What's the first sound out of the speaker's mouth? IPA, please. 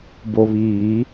b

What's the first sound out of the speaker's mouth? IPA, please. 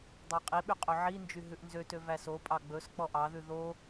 dˤ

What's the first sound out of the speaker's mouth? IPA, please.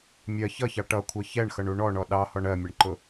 mʲ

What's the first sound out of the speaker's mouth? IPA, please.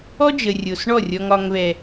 ɔ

